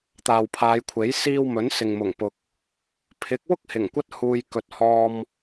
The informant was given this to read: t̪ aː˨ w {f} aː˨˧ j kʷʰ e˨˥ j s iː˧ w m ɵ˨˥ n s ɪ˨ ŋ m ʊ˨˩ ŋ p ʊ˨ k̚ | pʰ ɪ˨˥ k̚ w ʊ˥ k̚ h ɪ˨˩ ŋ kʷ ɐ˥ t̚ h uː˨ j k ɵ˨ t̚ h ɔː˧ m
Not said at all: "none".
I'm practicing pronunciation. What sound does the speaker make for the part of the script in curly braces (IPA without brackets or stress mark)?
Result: pʰ